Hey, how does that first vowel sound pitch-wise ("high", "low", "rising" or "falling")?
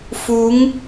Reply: rising